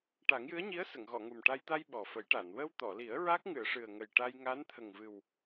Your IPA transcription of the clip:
ʈa˨˩˦ŋjɨ˧˥ə̯ɲi˧˥ə̯ sə˨˩˨ŋɣɔ˨˩˨ŋu˨˩mʈa˧j t̪a˧j ɓɔ˨˩fə˨˩˦jʈa˨˩˨n wə˧wt̪ɔ˨˩˨li˨˩˦ə̯ ɹa˦˥k̚ŋɨ˨˩˨ə̯ʂɨ˨˩ə̯ ŋə˨˩jʈa˧jŋa˧˥n t̪ʰə˨˩ŋvɨ˨˩w

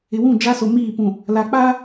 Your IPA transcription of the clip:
ɪ˨wũ˦˨ d͡ʒa˦so˨miː˦˨pũ˨ | la˨k͡pa˦

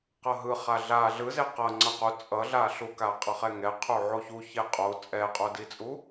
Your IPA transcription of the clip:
qʌɦɯ χaɮa ɮɯze qʌ ŋ͡ǀʌqu t͡sʼʌɮaɬuka qʼʌχɛŋɛ qʰuʕoçu çeqʼo t͡sʼɛqʼodit͡sʼu

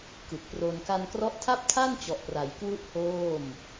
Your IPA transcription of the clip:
kɯ˨˩k̚pro˧n ka˧nkrɔ˦˥ʔtʰa˥˩p̚ tʰa˥˩n t͡ɕɔ˨˩ʔpra˩˦j kwu˥˩ʔhoː˥˩m

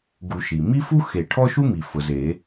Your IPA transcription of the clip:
ɡu˨˩˦ʃi˩ mi˥ fu˥xe˨˩˦ ʈʰɔ˥ʃu˥mi˩ fʊ˩ze˨˩˦

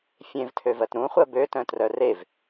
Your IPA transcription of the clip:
fʲẽvtʰøvɜt ɾũχʷɜ bøtœ̃ trœrev

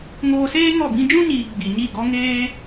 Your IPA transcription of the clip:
ŋoː˧seː˦ ŋɔ˦˨bĩ˦ d͡ʒũ˦ɲiː˨ ɡ͡bi˨ɲi˦˨ɡɔ˦ ŋeː˦

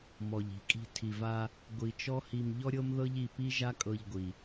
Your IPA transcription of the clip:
mɔ˩ʎi̤˩kʼi̤˧ tʰi˩va˧ | ɡʷi˩t͡ʃɔ˥ hi˧m ʎɔ˥ɾʲɤ˥mðɤ˥ʎi˧ pi˥ʒa˥kʼɤ˧ʎɡʷi˩

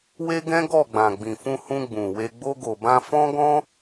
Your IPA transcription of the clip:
we˦ɡɛ̃˦ɡɔ˦˨ɡ͡bã˨ ɡ͡bĩ˨fũ˧hũ˧ ɡ͡bũ˨we˧ ɡ͡bo˧ɡo˨bã˧ fɔ̃˦ɡɔ̃˦

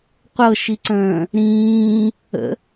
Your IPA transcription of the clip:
qʷɤʃiǀə̃ː | ɾĩː | ə̰

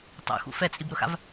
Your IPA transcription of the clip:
tˤṵxṵ fɛt͡sʼibɾʊxa̰v

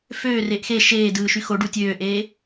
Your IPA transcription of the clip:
føːreːʔ xe ʃeːdɯː ʃyxoɖu tʲøːʔeː

